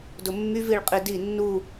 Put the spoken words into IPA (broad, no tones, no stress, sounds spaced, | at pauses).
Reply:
d ʊ mː y v i ɭ qʼ i d i nː u